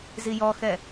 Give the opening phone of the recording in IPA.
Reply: z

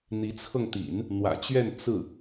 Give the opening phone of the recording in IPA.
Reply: n̪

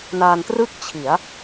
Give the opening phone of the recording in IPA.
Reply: n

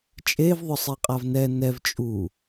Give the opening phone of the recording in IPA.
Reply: t͡ʃʼ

